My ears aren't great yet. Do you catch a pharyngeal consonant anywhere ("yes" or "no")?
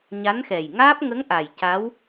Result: no